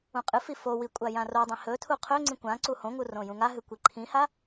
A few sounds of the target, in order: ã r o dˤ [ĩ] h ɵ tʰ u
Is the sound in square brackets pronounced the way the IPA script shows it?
yes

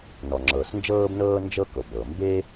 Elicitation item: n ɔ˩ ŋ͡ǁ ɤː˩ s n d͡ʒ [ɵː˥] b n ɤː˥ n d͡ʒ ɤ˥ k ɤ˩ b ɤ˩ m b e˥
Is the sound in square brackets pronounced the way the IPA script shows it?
no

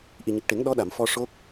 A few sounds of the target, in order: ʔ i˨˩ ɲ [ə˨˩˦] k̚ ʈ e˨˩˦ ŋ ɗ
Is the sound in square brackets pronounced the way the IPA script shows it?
no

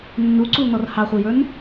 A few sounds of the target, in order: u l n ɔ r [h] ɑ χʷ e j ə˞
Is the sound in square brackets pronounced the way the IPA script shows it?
yes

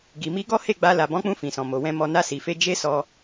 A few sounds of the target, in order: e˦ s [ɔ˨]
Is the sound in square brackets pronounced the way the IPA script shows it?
no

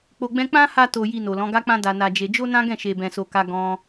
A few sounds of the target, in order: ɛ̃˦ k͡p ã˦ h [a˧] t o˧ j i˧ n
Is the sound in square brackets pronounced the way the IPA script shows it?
yes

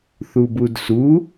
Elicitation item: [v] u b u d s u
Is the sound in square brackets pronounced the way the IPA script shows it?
no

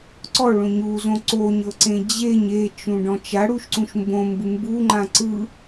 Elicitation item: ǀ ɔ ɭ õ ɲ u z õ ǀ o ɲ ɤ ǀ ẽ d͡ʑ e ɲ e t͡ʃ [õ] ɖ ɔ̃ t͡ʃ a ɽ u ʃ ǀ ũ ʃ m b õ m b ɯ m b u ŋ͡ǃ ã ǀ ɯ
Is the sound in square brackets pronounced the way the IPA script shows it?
no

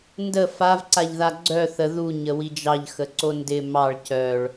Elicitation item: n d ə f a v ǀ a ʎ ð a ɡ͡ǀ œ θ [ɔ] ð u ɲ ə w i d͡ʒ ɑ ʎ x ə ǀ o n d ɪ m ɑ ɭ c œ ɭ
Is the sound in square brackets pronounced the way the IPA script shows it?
no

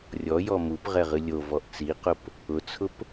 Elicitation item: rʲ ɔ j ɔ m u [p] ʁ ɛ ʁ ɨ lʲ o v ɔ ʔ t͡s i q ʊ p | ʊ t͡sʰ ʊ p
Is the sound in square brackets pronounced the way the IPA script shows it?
yes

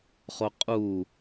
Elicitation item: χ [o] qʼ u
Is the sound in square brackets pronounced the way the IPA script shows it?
yes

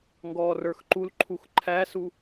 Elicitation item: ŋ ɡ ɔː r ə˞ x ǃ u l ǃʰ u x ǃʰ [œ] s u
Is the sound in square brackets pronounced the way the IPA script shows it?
no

